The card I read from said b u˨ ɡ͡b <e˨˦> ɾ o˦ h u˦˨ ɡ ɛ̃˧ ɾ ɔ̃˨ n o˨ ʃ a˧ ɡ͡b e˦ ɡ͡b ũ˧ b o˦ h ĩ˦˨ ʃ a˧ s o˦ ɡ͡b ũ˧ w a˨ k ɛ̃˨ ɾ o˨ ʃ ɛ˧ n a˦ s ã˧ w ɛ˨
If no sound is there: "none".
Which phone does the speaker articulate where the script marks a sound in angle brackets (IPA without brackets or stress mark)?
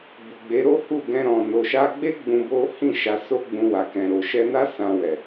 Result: e˨˦